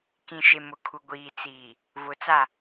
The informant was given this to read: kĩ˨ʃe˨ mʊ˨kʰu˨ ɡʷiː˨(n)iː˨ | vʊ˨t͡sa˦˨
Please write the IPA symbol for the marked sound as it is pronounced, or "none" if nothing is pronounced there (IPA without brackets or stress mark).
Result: t͡s